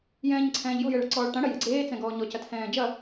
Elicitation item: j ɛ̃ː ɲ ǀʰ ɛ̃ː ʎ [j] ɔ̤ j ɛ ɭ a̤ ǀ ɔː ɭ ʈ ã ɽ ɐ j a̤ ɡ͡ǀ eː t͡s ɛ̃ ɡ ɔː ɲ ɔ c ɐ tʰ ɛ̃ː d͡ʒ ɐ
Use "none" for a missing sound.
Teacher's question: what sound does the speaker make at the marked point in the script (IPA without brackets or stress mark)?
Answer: j